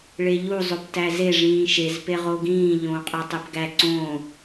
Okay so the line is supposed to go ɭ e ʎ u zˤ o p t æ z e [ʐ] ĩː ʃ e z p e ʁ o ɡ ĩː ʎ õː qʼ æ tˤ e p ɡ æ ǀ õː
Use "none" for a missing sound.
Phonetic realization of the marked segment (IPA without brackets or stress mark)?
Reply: ʐ